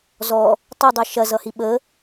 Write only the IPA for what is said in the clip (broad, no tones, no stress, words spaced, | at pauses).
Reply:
zɔ | tˤɵdˤe ʃɐzʌhi ɓə